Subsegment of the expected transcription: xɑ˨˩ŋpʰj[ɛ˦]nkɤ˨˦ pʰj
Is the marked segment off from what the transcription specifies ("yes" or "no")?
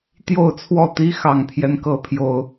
no